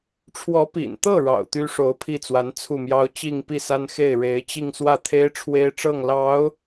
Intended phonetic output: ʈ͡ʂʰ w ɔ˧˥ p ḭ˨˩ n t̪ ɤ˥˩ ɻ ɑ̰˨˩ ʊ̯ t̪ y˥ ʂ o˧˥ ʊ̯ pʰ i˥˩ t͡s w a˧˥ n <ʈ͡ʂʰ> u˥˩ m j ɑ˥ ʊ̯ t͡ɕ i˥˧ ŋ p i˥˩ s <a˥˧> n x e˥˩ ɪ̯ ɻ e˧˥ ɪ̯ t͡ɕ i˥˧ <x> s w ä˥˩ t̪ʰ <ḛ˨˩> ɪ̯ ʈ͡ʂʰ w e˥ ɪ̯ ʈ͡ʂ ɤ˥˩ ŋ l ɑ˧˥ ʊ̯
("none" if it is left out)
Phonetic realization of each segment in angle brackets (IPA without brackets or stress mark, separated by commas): t͡sʰ, a˥, ŋ, e˥